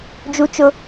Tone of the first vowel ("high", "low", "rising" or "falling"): high